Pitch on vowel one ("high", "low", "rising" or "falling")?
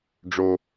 high